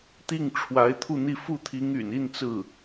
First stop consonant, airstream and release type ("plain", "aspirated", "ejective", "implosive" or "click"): plain